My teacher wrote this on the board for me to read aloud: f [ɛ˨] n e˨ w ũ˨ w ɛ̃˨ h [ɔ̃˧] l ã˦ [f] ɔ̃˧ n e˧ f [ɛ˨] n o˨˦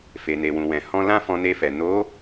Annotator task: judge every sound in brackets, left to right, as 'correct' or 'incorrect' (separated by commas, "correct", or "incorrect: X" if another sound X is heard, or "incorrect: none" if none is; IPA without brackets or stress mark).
incorrect: e˨, correct, correct, correct